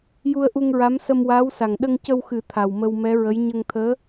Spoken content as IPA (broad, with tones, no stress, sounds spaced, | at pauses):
j u˧ ə̯ ʔ u˧ ŋ ɹ a˧˥ m s ə˧ m w aː˧˥ w s a˨˩ ŋ ɗ ə˧ ŋ c ə˧ w x ɨ˨˩˦ t̪ʰ a˨˩ w m ə˧ w m ɛ˧˥ ɹ ə˧˥ j ɲ ə˧ ŋ t̪ʰ əː˧˥